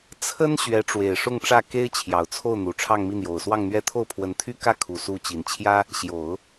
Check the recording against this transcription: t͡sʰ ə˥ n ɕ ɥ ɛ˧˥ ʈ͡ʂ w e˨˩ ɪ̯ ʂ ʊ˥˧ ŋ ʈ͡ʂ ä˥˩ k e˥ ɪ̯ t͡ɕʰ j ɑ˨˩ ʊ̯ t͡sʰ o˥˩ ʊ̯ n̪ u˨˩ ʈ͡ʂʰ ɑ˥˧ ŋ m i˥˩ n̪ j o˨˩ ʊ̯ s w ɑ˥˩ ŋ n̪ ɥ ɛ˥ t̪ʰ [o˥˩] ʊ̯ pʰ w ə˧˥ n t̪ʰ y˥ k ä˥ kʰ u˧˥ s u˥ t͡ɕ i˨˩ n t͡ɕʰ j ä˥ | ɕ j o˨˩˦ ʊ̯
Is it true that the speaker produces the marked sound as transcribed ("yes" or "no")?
yes